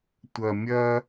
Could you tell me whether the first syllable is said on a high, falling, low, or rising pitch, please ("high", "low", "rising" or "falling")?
low